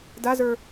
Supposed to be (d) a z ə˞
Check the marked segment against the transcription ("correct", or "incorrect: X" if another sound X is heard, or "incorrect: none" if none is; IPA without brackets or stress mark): correct